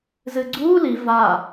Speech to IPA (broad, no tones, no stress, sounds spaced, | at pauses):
z ɨ ɡ͡ǀ uː l i v a